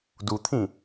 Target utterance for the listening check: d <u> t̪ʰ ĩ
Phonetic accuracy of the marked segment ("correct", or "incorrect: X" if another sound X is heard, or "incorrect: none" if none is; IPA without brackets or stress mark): correct